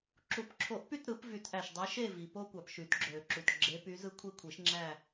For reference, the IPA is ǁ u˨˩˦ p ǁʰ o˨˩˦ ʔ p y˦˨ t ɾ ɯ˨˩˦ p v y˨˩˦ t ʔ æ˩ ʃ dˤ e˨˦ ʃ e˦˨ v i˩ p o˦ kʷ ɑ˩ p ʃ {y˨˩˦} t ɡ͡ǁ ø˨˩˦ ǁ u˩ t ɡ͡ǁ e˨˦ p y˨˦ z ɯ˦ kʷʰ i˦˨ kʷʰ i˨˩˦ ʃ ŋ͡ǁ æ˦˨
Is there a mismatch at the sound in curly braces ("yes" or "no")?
no